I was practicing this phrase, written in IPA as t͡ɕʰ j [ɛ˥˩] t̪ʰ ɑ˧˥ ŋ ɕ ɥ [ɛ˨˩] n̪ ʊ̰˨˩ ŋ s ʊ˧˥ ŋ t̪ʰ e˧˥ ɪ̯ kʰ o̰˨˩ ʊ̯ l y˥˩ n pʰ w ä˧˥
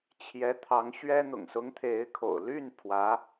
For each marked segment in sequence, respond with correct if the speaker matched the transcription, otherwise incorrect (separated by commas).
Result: incorrect, incorrect